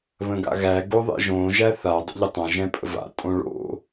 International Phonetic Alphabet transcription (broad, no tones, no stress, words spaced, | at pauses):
βə̃ɡa̰ɣæ ɡoðˤḛʒõ ʒæθa dˤə̰ʎətˤã ʒɛ̃pʼə̰va̰ tʼõɭo̰